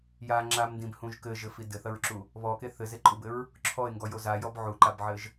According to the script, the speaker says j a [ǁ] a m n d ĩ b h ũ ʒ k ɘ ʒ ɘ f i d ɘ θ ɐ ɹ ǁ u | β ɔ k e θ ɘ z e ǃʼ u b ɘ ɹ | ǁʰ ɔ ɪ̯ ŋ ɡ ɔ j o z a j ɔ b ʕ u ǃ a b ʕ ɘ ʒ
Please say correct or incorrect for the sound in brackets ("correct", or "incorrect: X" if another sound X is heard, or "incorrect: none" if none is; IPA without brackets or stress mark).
incorrect: ŋ͡ǁ